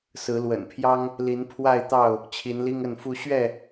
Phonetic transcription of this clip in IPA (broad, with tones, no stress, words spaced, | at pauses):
sɹ̩˨˦lwə̰˨˩npʰjɑ˦ŋ | li˨˦npʰwa˥˨ɪ̯t̪ɑ˥˨ʊ̯ | t͡ɕʰi˨˦nli˦ŋə˥˨nfu˦ ɕɥɛ˥˨